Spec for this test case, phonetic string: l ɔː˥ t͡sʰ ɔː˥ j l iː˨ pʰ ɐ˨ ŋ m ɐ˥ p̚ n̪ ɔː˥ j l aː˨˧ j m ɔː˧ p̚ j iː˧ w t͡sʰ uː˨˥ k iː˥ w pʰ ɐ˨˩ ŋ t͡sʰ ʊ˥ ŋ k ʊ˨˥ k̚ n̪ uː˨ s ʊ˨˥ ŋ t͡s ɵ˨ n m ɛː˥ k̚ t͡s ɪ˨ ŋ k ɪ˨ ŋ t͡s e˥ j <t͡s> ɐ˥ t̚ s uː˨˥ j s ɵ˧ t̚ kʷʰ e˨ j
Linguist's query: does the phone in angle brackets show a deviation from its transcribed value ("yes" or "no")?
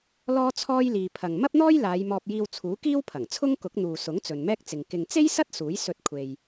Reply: yes